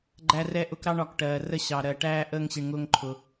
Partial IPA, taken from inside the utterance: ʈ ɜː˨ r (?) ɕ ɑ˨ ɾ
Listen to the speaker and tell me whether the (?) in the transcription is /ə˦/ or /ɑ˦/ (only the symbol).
ə˦